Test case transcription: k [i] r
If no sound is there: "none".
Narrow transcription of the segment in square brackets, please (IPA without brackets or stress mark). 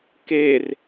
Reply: e